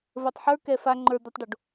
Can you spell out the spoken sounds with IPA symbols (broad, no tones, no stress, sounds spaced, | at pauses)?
v ə˞ tˤ ħ ə˞ k ɛ f a ŋ͡ǃ ə˞ d̪ o tˤ ɖ o ɖ